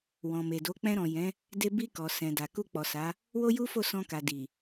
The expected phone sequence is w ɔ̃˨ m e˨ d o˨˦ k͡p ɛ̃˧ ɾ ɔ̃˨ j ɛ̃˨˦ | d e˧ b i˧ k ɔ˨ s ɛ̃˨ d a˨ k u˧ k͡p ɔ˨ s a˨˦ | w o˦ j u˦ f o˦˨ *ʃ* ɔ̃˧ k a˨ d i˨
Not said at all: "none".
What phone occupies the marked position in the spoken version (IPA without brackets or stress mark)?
s